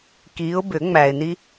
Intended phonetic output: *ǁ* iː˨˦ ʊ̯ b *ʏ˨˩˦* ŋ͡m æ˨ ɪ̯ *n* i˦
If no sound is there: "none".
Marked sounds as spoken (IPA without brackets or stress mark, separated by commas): k, ʏ˨˩˦, n